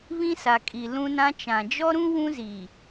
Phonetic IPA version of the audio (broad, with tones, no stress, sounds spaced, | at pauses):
β ĩ˦ s a˨ kʼ i˨ l ũ˦ n ã˦ t͡ʃ ã˨ d͡ʒ ɔ˦ ɾ ũ˦ w ũ˦ z i˨